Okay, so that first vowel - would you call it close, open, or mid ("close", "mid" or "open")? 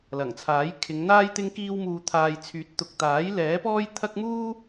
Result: open